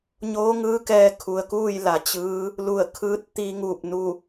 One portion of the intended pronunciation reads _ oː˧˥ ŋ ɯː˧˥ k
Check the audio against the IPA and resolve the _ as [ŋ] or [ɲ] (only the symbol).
ɲ